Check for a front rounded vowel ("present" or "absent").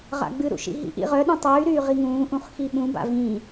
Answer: present